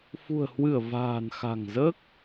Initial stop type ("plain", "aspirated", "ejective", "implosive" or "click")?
plain